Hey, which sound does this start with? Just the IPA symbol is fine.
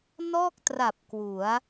n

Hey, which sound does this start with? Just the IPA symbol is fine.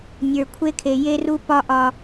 nʲ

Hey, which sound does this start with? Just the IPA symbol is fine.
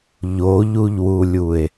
ʎ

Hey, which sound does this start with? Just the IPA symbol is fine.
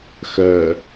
x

